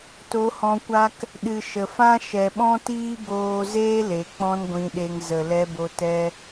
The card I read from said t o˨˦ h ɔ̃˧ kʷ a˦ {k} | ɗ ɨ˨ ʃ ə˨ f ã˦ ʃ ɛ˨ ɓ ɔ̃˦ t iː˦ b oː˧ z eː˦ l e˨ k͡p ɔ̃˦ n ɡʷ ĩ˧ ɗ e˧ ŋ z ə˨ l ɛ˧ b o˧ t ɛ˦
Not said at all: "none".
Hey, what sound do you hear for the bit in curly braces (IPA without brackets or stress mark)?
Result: k